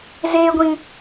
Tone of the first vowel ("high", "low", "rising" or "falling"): low